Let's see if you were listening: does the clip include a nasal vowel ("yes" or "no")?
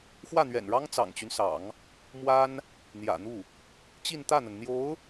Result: no